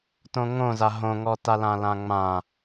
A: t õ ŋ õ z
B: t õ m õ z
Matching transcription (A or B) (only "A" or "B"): A